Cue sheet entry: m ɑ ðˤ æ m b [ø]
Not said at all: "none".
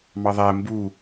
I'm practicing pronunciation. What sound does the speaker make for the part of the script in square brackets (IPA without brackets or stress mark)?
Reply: u